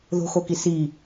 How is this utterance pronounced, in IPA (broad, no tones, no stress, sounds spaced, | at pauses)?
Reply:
ð o̤ x o k i s i